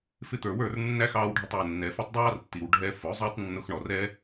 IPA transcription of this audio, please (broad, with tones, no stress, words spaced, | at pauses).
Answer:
fɪ˧t̪ə˞˨wə˞˦˨r nːæ˦xɑː˧wɖʱə˧tˤwʊ˨ nːɛ˨fu˧tˤdˤɑː˦r tːi˨wɖʱɛ˧ fʊ˨˦zˤʊː˦tˤ nːʊ˧xɳɔ˨rɛ˦